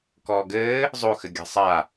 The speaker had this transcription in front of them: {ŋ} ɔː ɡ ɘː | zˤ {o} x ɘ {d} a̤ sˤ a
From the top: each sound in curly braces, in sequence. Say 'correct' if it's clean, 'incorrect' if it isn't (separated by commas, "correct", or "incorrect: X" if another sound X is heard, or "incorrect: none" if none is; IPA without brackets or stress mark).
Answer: incorrect: k, correct, incorrect: ɡʲ